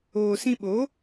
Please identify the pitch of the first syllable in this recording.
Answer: low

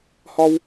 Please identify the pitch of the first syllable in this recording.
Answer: high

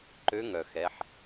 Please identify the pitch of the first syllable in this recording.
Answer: rising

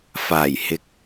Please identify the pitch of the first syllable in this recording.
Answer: low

